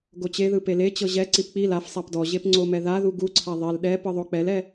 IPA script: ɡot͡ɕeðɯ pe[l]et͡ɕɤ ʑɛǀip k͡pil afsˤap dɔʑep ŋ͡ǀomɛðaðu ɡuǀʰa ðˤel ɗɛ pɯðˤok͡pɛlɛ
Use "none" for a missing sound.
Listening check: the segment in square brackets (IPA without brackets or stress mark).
l